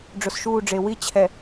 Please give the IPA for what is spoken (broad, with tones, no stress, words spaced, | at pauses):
ɖ͡ʐʊ˨sʃuː˦˨ɖ͡ʐe˨ wi˦t͡ɕʰɛ˨